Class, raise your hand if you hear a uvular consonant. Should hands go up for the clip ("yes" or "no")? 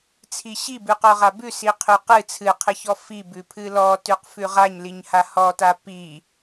yes